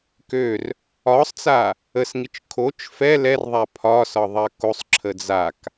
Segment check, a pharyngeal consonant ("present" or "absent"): absent